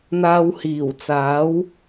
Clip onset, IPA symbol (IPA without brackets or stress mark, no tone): n̪